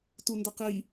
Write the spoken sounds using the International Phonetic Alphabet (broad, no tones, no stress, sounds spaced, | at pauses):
t u n d ə q i